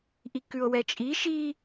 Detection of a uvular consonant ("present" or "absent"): absent